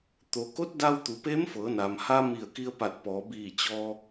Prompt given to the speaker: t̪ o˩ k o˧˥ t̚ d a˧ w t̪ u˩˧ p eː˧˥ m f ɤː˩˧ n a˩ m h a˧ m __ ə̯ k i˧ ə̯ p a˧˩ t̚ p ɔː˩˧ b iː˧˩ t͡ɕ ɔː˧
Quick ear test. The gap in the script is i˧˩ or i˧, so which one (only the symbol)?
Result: i˧˩